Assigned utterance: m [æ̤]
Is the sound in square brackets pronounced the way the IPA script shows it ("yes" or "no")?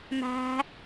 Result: yes